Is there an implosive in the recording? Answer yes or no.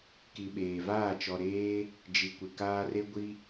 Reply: yes